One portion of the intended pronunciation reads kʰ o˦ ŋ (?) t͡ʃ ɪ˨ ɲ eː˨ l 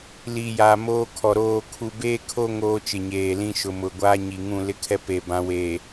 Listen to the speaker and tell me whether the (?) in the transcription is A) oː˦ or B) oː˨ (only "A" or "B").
A